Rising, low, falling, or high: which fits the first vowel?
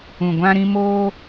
low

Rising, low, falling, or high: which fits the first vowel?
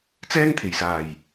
high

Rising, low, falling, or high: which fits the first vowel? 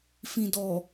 low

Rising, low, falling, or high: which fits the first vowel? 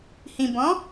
low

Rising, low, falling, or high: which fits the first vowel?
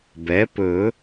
rising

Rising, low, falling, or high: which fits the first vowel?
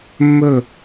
falling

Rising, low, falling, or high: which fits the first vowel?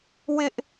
high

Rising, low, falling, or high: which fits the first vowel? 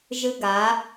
high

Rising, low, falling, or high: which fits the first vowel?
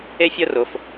high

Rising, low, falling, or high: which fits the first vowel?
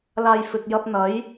low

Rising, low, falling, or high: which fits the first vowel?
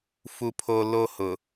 high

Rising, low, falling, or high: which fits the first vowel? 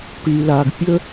low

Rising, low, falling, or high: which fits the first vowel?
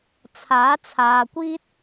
rising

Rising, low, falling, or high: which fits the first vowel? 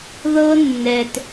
high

